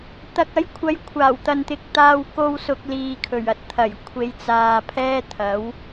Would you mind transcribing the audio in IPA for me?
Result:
t̪ ɐ˨ k̚ ɐ˨˥ j kʷʰ ɐ˨˧ j kʷʰ aː˨˩ w t̪ ɐ˨ n t̪ ɪ˨ k̚ t̪ aː˧ w k o˧ w s ʊ˨ k̚ l iː˨ kʰ ɵ˨˩ ɥ ɐ˨ t̚ t̪ʰ ɐ˨˩ j kʷʰ e˨˧ j t͡s aː˨ pʰ ɛː˥ t̪ʰ ɐ˨˥ w

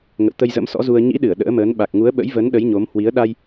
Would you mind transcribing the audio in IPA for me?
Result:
ŋ ə̰˧˨ w t̪ ə˧ j z ə̰˧˥ m s ɔ̰˧˥ z u˧ ə̯ ɲ ḭ˧˥ ɗ ɨ˧˩ ə̯ ɗ ə̰ː˧˥ m əː˨˦ n ɓ a˨˩ k̚ ŋ u˨˦ ə̯ ɓ ə̰˧˥ j v ə˨˦ n ɗ ə˨˦ j ɲ o˨˦ m h w i˨˦ ə̯ ɗ a˧ j

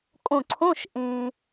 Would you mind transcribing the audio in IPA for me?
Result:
kʼ ũ˧˩ ǀʰ ũ˧˥˧ ʃ ʔ ĩ˩

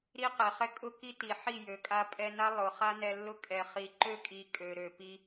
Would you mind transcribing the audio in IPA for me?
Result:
ɾ i˦ q ɛ˨ χ ɛ˦ kʼ ʊ˦ k i˦ t i˨ ħ i˦˨ j ø˨ kʼ a˧ pʼ ɛ˧ n a˦ lˠ ʊ˨ χ a˦ n ɛ˧ lː ʊ˦ kʼ ɛ˨ χ i˨ ǃ ø˦˨ kʼ i˨ kʼ ø˨ ɾ ø˨ p i˧

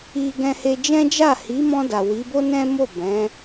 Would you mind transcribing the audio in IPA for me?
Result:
i˧ ɡ ɛ̃˧ h e˧ d͡ʒ ɛ̃˦ d͡ʒ a˦˨ h i˨˦ m ɔ̃˧ d a˨ w i˨˦ b o˦ n ɛ̃˦ m o˦˨ b ɛ̃˨˦

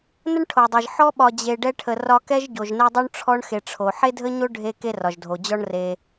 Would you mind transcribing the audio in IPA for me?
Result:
n ə˥ ɳ ʈʰ o˩ dˤ e˩ ʒ ħ ɔ˥ ɓ ɒ˨ d͡ʑ e˨ ɖ ɛ˦ ʈʰ ə˨ r ɒ˦ k ɛ˥ ʒ ɟ o˩ ʒ n e˦ dˤ o˥ ɳ ʈ͡ʂʰ ɔ˥ ɳ x e˨ ʈ͡ʂʰ o˩ ħ e˥ dʱ ə˥ ɲ o˥ ɖʱ e˦ k e˦ r ɒ˩ ʒ dʱ o˩ d͡ʑ ɔ˦ ɳ r e˨

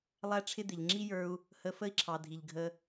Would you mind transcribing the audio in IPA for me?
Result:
lˠ æ˦ ʈ͡ʂʰ ɪ˦ d̪ ɪ˨ ʎ ŋ͡ǁ i˦ j ə˞˧ u̯ | h ə˧ f ə˦ i̯ ǁʰ ɑ˨ dʱ i˨ ʎ ɡʱ ə˧

